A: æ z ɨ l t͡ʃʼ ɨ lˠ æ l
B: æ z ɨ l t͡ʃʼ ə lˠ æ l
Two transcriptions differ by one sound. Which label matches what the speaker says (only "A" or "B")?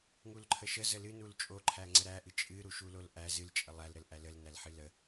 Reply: B